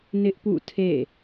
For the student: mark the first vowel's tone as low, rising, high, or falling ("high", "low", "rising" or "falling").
high